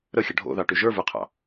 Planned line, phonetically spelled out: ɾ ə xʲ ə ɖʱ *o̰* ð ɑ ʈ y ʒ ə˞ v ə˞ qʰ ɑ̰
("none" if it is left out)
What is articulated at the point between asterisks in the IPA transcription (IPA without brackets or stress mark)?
o̰